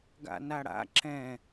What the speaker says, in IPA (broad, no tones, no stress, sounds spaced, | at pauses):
ɡ a̰ n a ɽ a̰ ǁ ɛ̃